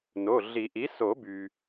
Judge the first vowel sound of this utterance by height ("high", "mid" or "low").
mid